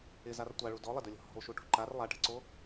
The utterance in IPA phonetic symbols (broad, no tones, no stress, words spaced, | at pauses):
ɪzar tʷaɭu dɔlˠɪdɵlʲɔ̤ hɔ̤lʃuʈṳ ǃar lˠaʈɛ̤ǀo